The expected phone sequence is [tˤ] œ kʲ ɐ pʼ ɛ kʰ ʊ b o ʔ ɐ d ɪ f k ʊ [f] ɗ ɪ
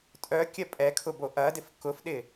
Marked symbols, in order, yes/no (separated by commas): no, yes